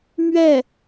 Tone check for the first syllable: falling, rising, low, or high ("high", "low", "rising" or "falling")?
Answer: falling